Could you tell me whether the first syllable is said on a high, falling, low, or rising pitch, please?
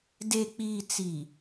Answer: low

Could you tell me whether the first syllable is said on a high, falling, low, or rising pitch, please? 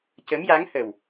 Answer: rising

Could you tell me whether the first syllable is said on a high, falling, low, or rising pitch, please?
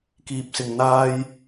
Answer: low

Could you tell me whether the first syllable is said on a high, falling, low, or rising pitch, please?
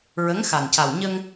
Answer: rising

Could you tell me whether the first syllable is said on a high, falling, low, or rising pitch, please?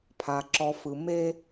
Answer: low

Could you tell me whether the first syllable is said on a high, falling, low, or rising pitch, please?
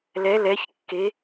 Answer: rising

